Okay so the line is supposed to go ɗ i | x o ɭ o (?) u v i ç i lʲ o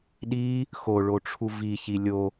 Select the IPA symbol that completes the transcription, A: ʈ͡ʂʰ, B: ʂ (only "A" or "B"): A